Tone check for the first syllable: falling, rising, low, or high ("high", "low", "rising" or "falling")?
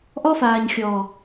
high